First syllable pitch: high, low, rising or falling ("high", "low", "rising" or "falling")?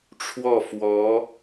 falling